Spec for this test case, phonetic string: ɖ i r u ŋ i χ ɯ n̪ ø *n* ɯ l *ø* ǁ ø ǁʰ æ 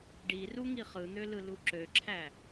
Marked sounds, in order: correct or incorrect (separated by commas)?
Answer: incorrect, incorrect